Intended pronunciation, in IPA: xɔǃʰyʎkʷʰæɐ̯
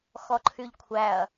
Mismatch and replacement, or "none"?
none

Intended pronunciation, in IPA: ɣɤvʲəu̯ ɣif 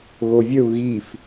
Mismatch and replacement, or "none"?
ɤ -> o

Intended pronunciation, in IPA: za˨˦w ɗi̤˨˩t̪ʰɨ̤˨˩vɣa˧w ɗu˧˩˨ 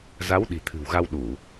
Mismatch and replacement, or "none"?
v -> w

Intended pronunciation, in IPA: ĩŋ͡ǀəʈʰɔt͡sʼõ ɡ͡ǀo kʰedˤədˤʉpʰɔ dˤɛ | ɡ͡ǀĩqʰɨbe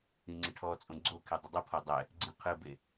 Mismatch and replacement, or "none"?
ʉ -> ɨ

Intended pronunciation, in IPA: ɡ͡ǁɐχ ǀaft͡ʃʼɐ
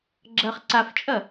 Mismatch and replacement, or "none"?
none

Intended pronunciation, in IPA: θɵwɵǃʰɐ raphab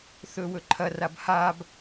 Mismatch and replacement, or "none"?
p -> b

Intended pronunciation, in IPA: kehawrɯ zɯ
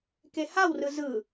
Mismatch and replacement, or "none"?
none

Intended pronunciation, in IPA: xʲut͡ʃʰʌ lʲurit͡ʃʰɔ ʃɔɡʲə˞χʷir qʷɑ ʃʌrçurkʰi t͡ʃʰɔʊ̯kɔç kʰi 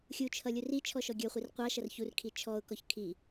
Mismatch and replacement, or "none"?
none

